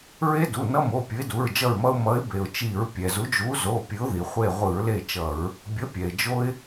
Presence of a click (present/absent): absent